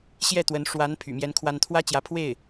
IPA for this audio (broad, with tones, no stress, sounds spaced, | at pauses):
ɕ j ɛ˥˩ t̪ w ə˧˥ n ʂ w a˧˥ n pʰ y̰˨˩ m j ɛ˥ n kʰ w a˥ n t̪ʰ w ä˥ t͡ɕ j ä˧˥ pʰ w e˥˩ ɪ̯